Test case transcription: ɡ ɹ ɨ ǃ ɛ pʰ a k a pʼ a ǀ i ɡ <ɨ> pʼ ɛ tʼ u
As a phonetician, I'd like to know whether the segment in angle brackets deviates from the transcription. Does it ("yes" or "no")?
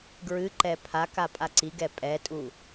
yes